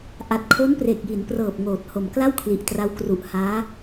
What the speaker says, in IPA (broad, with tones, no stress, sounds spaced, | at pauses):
ʔ a˨˩ t̚ kʰ o˦˥ n p r e˨˩ k̚ j i˩˦ n p r ɤː˨˩ p̚ ŋ oː˨˩ t̚ h o˨˩ m k l a˥˩ w kʰ l i˨˩ ʔ t r a˦˥ w k r u˨˩ ʔ h aː˦˥